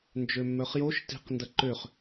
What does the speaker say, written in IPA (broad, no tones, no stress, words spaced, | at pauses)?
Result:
nd͡ʒømːœχjoʃ ti̤q ndɐǃøχ